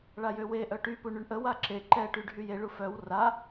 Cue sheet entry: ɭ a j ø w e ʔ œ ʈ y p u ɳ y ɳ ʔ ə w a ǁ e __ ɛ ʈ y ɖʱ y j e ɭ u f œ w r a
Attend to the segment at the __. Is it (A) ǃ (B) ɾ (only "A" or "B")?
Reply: A